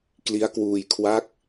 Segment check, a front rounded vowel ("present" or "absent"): absent